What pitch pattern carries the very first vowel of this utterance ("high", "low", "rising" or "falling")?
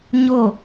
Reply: falling